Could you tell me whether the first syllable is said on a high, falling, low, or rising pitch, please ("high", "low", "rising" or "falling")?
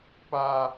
high